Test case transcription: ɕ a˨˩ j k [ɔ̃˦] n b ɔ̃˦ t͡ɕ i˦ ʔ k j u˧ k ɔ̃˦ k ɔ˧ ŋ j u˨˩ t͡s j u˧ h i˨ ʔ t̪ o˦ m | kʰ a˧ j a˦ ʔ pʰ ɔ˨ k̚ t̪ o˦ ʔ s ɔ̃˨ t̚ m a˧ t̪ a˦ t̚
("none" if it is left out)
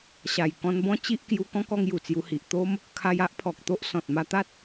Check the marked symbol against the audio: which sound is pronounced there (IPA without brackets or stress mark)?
ɔ̃˧